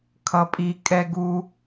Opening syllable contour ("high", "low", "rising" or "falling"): low